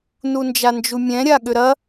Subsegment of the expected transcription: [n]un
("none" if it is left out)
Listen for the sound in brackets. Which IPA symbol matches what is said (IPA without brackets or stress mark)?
n